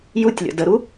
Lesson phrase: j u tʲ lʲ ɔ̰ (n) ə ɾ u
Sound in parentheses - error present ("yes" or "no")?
yes